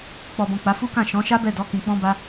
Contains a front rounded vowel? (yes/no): no